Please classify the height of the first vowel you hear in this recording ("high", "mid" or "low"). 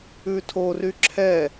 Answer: high